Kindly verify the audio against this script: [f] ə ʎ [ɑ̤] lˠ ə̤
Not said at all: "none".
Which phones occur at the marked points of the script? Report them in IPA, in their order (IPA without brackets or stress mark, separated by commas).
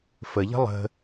f, ə̤